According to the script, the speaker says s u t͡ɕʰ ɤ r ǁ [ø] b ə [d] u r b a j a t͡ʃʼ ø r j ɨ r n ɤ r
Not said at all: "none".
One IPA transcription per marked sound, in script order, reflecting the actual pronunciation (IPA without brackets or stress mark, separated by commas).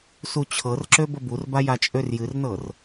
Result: ø, b